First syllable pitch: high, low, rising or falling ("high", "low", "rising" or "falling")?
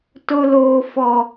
high